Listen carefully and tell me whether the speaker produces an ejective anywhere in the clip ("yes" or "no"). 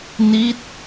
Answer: no